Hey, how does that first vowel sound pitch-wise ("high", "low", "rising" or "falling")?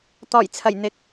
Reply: low